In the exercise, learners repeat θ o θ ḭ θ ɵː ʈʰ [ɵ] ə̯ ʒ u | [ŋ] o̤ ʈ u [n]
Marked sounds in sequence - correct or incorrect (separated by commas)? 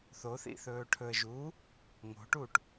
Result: correct, correct, incorrect